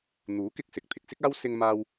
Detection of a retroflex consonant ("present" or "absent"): absent